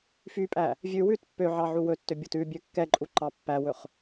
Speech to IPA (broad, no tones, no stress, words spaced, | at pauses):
fypʼæ | vʲʉ wʉt pːøʕɑ ʕuwɵtːø bʲotʉbʲø kːɛǃʼu ǃɑpːæwɵχ